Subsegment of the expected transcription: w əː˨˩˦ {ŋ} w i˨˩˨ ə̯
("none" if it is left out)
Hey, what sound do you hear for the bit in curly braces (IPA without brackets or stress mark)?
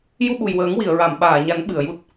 ŋ